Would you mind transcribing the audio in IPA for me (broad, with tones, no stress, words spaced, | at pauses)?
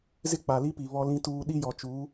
zɪ˦k͡pa˨li˦pi˨ βɔ˦lĩ˦tuː˦ ɗi˦jɔ˨t͡ʃuː˨˦